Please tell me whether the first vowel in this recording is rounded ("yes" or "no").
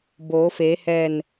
yes